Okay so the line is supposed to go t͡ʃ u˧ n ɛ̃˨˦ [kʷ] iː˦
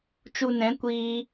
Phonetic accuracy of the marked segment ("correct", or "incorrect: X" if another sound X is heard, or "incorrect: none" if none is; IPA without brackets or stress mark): correct